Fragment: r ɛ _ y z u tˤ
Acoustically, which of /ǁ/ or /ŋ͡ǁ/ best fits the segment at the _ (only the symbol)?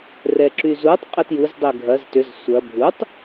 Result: ǁ